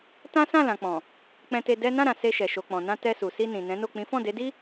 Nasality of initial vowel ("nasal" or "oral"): nasal